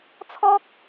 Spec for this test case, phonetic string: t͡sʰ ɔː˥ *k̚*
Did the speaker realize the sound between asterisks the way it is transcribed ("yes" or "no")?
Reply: yes